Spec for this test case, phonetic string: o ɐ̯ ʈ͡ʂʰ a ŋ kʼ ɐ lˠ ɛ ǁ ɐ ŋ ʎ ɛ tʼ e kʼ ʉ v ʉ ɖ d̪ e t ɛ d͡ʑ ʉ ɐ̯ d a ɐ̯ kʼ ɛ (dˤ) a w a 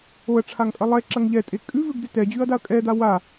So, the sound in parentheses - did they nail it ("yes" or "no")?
no